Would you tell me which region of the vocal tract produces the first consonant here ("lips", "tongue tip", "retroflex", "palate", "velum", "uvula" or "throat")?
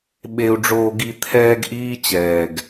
lips